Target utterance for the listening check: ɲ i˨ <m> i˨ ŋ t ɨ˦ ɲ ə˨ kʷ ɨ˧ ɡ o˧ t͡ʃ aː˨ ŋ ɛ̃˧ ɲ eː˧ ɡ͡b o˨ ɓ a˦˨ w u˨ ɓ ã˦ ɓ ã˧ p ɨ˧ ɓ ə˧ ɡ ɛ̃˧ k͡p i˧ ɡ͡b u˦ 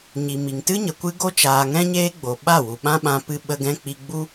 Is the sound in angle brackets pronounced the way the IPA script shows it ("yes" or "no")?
yes